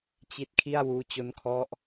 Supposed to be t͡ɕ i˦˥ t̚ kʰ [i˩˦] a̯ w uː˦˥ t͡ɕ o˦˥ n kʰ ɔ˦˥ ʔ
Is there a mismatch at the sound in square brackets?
yes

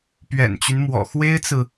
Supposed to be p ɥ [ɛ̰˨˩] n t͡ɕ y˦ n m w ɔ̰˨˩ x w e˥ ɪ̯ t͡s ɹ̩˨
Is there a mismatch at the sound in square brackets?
no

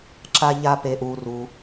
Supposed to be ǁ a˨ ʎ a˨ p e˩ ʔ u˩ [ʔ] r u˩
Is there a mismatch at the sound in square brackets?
yes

